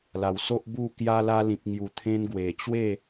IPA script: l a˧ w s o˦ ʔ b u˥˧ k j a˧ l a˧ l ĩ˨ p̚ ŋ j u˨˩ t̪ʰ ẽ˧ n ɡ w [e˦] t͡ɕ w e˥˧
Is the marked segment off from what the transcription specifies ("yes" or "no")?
yes